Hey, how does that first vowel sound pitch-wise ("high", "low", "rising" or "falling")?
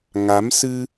rising